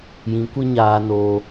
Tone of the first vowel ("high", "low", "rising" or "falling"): rising